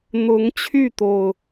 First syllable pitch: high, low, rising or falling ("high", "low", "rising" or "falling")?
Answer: rising